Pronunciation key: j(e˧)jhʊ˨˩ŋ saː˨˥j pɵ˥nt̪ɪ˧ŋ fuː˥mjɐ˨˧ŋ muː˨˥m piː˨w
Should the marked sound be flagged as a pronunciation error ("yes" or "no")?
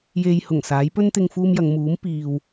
no